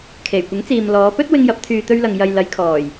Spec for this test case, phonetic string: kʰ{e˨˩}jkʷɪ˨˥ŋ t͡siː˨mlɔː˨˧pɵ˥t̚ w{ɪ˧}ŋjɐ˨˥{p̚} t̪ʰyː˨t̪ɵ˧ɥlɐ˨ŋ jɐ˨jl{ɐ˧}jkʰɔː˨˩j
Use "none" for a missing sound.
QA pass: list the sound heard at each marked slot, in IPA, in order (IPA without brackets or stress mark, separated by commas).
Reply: e˨˩, ɪ˧, p̚, ɐ˨˧